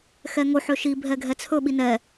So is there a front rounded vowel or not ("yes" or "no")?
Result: yes